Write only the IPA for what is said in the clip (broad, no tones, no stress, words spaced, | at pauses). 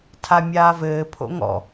tʰamʲaːvɘː pʰo̰ŋɔ̰